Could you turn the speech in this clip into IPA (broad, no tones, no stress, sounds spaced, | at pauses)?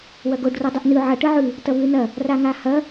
w ɐ ɡ o ɖ r o dˤ ɨ ʔ n ʉ ʕ ɐ ʈ ɨ ʕ ʉ | t ɐ β ʉ n ɐ | r a ŋ a h ɐ